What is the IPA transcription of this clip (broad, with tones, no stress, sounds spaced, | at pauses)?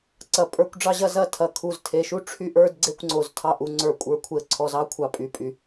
ǀ ɐ˩˧ pʼ ə˞˥˧ kʷ ɖ͡ʐ ɑ˥˧ ʑ ɐ˥˧ z ɐ˥˧ tʰ ɐ˧˩ kʰ u˧˩ z tʰ e˧˩ ʃ u˥ ʈ͡ʂʰ y˥˧ ʔ ə˞˥˧ d ɡ͡ǀ e˥˧ kʷ ŋ͡ǀ o˩˧ z tʰ ɑ˧ ʔ u˩˧ ŋ͡ǀ ə˞˧˩ kʷʼ ə˞˧ kʷʰ e˧ ə̯ ǀʰ ɔ˧ z ɑ˥ kʷʰ ɑ˧ pʼ y˧˩ pʼ y˧˩